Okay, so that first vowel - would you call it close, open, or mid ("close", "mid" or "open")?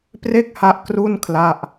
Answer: mid